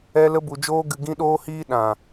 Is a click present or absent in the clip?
absent